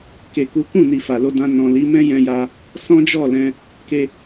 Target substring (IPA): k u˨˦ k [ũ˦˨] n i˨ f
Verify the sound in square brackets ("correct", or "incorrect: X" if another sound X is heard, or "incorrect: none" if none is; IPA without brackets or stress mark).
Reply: correct